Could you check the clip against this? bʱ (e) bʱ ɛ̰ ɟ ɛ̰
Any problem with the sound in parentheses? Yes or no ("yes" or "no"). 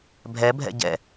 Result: yes